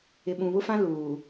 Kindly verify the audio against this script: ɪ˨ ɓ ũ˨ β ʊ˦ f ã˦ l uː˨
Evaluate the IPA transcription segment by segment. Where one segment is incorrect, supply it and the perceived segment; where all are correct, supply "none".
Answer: none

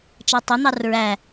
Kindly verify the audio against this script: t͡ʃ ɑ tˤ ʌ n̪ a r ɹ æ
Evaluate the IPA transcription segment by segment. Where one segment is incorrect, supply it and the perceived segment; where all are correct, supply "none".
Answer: a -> ɑ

